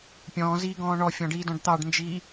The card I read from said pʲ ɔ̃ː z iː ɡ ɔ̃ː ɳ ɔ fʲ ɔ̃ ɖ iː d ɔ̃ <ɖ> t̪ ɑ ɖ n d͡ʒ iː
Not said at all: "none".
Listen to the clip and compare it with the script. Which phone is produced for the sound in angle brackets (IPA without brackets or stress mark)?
ɖ